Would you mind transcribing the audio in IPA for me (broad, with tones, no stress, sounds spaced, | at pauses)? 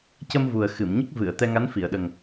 c ə˧ m v u˨˩ ə̯ x ɨ˨˩˨ m ɲ ə˦˥ k̚ v ɨ˨˩˨ ə̯ t̪ ɛ˧ ŋ a˧˥ n f i˨˩˨ ə̯ ɗ ə˨˩ ŋ